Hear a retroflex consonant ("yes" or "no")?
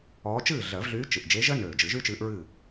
no